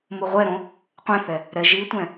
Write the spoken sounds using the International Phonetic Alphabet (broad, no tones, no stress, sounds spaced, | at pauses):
m u ʁʷ ɛ ɾ õ | qʷ ɛ̃ θ ɛ | ɾ ɛ ʒ i tʷ ɛ̃